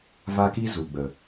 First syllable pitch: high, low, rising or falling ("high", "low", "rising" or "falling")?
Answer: high